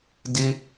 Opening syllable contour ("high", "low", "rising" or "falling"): high